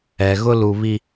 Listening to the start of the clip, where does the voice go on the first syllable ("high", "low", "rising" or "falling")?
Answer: low